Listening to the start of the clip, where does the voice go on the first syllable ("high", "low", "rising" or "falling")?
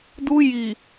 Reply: high